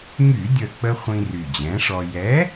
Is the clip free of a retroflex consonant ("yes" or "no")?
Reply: no